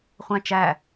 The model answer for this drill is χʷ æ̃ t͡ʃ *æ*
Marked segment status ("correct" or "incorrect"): correct